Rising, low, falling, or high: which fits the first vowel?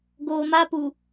low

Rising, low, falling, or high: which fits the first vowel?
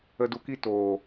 low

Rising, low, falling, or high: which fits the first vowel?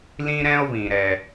high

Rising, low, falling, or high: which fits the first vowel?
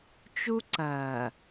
high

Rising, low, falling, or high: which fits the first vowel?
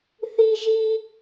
high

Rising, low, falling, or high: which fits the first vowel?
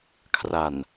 low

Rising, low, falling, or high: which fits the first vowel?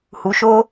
low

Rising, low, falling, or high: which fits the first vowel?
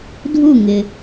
falling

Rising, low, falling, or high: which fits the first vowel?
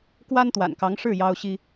high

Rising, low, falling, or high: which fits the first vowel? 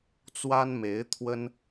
high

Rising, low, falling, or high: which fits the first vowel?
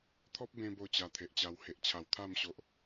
high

